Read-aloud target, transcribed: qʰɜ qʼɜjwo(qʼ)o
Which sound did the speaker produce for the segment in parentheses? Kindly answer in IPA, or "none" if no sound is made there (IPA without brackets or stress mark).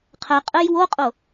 qʼ